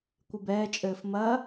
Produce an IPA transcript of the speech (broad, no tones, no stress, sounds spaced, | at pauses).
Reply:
kʷ ɨ b ɛː t͡ʃʼ ɘː f m ɐ